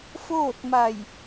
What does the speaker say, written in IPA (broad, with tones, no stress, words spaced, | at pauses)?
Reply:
foː˥˨t̚ma˧˩j